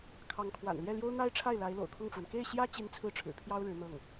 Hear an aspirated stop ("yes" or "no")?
yes